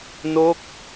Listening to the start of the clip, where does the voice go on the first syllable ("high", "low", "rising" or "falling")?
falling